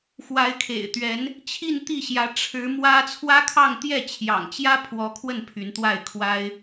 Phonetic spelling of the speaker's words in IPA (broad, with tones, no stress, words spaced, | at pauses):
xwa˧˥ɪ̯kʰḛ˨˩ɪ̯t̪ɥɛ˧˥n | t͡ɕʰi˥˧nt̪i˥˩ɕjä˧˥ ʈ͡ʂʰɻ̩˧˥ mwä˥ t͡sʰwä˥kʰɑ˥˧ŋ t̪jɛ˥˩t͡ɕʰjɑ̰˨˩ŋt͡ɕjä˥ pʰwɔ˧˥kʰwə˥˩n pʰy˧˥nt̪wa˥˩ɪ̯kʰwa˥ɪ̯